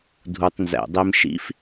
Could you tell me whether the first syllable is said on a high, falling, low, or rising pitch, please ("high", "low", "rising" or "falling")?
low